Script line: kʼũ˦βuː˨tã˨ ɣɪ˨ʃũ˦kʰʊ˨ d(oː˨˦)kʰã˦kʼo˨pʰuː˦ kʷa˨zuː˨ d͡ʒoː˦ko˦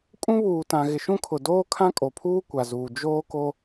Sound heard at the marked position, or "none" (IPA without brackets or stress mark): oː˦